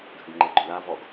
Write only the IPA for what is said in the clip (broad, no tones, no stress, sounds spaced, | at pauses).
ɡʱ ʏ ɡ ŋ͡ǃ e ɡ͡ǃ ʏ l a v ɔ ɡ